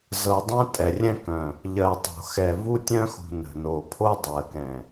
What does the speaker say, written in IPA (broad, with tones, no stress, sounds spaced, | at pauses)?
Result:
z ɤ˨ dˤ ɛ̃˦ tʼ ɛ˨ rʲ ɛ̃˦ k œ̃˨ | ʎ ɜ˨ tˤ o̤˨ x ɛ˨ v u˦ tʲ œ̃˦ x ṳ˨ n ə̤˨ n o˨ pʰ o˦ dˤ ɜ˨ k ɛ̃˨